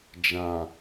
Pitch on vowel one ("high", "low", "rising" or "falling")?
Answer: low